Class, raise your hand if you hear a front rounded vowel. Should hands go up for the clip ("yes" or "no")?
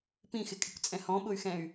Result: yes